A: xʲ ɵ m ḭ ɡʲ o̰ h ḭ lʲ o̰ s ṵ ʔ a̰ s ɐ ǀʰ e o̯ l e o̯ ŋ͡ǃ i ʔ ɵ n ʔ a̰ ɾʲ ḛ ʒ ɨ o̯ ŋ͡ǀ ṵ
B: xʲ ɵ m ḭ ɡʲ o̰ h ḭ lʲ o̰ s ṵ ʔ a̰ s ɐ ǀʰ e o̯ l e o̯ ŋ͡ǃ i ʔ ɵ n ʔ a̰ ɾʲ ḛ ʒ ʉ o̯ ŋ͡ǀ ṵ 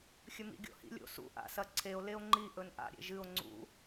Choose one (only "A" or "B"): A